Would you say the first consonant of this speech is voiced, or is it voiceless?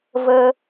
voiced